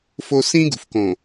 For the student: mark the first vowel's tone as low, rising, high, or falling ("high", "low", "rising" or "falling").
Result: low